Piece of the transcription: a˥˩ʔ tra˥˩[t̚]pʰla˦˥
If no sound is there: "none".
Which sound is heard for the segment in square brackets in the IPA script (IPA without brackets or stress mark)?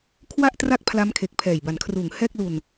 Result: k̚